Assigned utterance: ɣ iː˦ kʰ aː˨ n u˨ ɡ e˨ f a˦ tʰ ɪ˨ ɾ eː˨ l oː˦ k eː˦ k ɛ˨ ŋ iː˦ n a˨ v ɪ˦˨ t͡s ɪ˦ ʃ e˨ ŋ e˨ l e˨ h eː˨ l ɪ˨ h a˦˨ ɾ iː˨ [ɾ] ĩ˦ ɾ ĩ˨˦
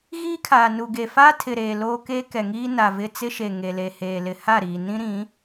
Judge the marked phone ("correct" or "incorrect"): incorrect